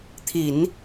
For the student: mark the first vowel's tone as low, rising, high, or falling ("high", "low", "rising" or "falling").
low